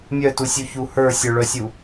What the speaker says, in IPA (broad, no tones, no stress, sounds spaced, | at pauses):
mʲ œ t u sʲ u ç u h ə˞ sʲ ə˞ ɭ œ sʲ u